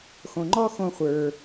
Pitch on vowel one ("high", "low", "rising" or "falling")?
low